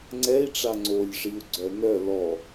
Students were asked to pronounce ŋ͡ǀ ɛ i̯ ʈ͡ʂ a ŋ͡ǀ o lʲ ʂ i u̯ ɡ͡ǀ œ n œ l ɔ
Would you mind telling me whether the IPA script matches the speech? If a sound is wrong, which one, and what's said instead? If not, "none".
none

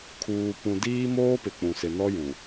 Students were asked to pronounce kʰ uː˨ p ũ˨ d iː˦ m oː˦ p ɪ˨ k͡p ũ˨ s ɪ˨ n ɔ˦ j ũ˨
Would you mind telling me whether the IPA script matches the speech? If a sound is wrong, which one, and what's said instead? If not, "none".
none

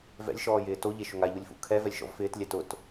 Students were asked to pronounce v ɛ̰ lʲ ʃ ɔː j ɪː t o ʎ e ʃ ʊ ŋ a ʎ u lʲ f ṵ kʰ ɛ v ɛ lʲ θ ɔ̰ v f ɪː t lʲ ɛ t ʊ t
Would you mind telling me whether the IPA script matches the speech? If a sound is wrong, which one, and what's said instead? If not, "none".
θ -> ʃ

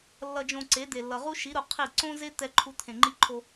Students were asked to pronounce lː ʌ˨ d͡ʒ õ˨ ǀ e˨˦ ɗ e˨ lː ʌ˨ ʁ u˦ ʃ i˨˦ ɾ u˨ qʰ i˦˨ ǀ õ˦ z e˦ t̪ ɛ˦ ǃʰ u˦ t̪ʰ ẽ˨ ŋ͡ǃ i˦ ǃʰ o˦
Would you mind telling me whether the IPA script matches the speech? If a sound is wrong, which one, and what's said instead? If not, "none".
ɗ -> d̪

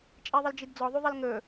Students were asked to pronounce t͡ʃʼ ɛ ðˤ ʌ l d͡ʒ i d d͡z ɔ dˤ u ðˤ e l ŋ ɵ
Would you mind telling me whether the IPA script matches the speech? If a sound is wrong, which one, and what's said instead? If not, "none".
dˤ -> ðˤ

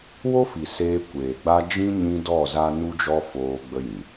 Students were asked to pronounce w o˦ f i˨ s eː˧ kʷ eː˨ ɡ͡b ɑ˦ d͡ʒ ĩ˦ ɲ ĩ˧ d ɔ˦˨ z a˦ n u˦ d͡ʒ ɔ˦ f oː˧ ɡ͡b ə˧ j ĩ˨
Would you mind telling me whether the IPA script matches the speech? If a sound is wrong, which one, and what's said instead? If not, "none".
ɑ˦ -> a˦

